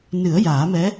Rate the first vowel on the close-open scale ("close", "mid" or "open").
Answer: close